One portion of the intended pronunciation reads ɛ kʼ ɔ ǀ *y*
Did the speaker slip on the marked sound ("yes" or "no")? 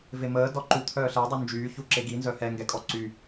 no